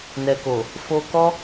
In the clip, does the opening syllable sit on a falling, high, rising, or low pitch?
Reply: low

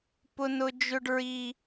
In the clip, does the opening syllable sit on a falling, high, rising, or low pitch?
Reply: high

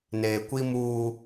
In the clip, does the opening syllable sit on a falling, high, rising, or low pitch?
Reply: low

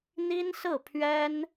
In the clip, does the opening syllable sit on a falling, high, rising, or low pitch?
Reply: high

